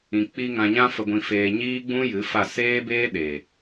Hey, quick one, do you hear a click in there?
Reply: no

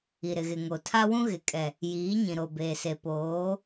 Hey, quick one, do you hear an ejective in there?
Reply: yes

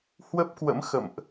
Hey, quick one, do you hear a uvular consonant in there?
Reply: no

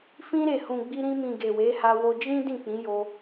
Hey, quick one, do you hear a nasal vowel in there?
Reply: yes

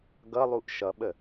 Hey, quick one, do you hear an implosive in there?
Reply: yes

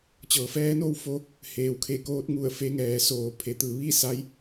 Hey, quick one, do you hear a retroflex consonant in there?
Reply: no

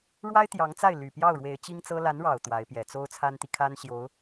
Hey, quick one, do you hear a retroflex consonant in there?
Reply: yes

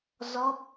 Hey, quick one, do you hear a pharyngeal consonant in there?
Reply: no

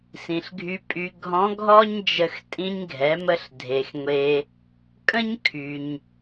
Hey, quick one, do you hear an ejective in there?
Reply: yes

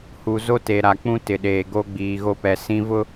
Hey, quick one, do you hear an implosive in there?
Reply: yes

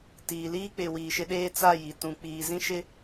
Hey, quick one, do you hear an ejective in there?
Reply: no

